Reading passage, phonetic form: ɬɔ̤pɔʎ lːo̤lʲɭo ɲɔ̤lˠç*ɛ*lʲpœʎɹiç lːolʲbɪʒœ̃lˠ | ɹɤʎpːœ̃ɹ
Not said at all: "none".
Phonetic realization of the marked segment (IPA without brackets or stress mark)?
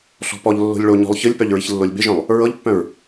ɨ